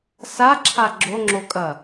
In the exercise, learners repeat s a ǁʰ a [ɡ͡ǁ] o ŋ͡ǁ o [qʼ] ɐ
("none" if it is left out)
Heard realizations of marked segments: ɡ͡ǁ, kʼ

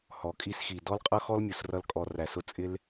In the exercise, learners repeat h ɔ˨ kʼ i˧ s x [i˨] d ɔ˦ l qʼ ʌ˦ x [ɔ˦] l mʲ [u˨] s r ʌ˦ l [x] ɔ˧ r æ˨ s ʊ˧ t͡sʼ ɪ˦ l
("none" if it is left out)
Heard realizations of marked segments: i˨, ɔ˦, u˨, kʼ

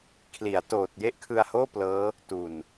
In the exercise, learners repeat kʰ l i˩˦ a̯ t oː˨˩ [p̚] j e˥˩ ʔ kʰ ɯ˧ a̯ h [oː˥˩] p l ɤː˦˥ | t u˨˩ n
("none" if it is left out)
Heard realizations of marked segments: t̚, oː˥˩

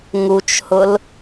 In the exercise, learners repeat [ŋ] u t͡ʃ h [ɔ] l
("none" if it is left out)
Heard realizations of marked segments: ŋ, ʊ

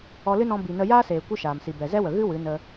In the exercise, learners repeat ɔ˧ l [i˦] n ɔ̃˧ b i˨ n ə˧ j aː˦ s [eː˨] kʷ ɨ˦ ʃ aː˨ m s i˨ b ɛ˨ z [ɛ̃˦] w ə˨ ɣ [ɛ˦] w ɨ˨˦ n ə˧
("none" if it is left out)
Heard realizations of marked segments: ɨ˦, eː˨, ɛ˦, ɨ˦

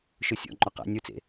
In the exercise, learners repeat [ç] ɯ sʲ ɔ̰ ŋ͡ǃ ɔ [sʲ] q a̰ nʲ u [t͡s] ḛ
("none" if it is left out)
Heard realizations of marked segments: ʃ, none, t͡s

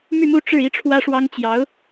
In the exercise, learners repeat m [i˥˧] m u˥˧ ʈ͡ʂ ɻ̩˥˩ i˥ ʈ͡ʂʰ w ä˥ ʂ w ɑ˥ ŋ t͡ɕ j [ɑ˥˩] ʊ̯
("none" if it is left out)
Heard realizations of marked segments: y˥˧, ɑ˧˥

